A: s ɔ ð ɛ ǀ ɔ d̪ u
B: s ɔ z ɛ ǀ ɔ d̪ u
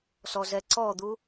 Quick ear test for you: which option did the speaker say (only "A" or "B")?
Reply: B